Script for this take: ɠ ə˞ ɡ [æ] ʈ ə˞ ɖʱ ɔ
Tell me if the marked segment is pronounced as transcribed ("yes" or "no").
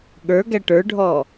yes